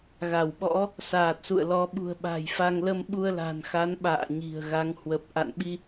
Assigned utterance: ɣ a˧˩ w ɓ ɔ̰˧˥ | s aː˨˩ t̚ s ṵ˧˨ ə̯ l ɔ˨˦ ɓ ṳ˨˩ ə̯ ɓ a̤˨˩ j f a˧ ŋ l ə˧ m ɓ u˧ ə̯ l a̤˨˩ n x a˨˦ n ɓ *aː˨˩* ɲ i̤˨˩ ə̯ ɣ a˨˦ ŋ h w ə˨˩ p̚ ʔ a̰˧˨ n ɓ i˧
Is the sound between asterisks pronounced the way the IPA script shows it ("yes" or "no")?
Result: no